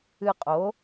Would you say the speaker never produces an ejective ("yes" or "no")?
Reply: no